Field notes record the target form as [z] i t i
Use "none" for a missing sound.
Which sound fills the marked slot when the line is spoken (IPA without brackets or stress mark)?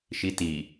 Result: ʃ